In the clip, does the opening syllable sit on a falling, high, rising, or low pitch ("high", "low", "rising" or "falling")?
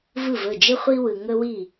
falling